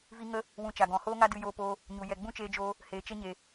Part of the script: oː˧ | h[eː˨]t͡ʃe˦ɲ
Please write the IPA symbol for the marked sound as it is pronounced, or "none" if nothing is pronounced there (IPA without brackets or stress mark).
eː˨